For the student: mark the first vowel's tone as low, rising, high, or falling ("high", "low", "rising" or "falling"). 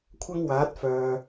high